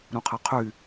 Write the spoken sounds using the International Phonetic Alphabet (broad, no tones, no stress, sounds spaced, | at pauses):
ɾ ũ qʰ ɛ qʰ y